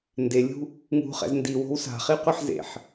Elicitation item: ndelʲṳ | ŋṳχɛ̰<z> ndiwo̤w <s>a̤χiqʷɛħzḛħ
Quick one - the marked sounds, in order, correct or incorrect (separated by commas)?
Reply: correct, correct